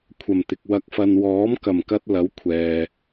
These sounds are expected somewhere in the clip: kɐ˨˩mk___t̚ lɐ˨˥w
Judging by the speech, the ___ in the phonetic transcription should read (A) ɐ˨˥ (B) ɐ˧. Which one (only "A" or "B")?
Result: B